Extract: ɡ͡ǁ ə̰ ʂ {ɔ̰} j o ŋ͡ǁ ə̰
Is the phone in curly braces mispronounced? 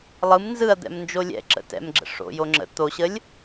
yes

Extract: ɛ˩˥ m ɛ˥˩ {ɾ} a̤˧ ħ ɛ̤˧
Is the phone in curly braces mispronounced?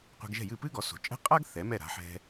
no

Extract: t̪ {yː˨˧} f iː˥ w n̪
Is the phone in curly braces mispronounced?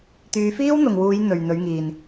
no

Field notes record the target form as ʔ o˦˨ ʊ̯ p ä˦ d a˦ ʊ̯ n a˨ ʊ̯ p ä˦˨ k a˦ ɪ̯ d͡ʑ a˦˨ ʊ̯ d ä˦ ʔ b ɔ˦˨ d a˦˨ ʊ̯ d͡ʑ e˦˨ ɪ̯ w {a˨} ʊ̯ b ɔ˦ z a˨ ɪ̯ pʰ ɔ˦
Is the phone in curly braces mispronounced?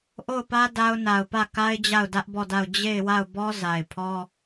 yes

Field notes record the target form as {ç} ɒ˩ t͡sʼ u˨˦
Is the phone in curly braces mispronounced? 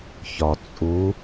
no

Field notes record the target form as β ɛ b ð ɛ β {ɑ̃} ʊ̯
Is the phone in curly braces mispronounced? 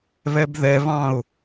no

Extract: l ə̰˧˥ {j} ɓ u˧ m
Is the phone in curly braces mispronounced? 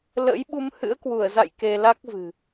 no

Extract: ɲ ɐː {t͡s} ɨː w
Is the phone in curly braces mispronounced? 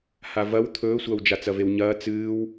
no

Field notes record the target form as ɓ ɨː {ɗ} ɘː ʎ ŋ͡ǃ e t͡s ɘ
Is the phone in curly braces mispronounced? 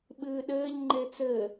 no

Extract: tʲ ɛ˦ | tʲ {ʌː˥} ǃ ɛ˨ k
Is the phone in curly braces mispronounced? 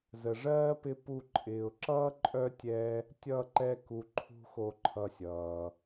yes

